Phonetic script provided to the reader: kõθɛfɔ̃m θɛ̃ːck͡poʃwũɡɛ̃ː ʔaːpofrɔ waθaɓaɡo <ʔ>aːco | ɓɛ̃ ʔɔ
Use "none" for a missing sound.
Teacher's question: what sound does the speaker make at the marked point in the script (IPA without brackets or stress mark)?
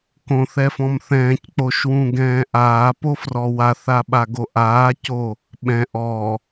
ʔ